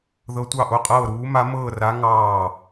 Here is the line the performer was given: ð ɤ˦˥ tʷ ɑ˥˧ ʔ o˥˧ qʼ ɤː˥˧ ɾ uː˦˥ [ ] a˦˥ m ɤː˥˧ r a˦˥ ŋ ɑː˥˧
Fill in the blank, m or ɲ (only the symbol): m